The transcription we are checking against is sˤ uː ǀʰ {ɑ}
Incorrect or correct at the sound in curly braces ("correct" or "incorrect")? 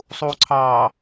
incorrect